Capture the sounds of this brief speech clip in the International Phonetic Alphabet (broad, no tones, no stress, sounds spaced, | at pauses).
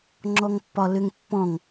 ŋ͡ǁ ɔ ŋ pː ɒ l ʏ ŋ pː ɔ̃ ŋ